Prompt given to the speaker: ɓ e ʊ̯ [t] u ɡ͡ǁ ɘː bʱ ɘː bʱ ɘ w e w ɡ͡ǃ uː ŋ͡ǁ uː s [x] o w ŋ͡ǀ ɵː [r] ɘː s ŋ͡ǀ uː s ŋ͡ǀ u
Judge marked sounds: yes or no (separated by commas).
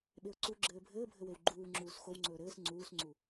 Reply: no, yes, no